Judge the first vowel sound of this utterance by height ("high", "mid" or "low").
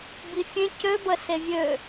high